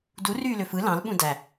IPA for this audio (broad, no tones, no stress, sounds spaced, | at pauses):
d u r yː l ø f ɯ l ɑ̃ l ɓ ũ d æ